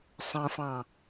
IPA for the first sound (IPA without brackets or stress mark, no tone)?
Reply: sˤ